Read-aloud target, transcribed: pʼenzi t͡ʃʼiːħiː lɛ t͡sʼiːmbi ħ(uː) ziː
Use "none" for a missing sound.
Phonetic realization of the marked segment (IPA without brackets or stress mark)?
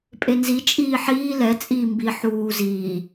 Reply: uː